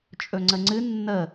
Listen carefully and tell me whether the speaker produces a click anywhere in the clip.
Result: yes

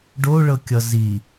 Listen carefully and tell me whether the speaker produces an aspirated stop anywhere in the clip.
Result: no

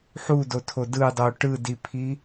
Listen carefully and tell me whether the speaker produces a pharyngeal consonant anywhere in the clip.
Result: yes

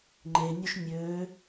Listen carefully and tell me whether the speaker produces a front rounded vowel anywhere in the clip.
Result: yes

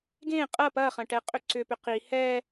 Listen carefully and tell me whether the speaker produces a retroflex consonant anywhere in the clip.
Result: yes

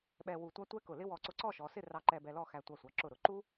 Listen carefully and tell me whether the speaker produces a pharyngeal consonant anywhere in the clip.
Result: no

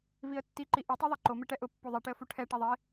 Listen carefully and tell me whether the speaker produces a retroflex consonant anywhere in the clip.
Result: yes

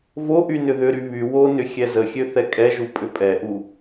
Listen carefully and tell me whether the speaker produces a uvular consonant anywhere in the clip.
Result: no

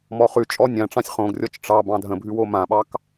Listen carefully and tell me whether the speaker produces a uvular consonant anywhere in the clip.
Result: yes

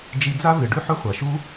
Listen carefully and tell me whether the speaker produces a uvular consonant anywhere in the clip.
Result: yes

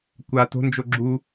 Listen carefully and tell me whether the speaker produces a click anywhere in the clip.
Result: yes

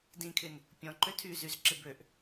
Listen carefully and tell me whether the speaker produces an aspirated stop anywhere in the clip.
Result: yes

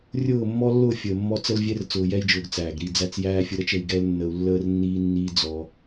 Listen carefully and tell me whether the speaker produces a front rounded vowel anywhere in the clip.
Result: no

